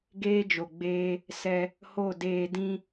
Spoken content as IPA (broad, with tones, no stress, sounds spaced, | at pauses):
ɡ eː˦ d͡ʒ o˨ ɡ͡b eː˧ | s ɛ˧ | h o˦˨ d eː˧ d ĩ˧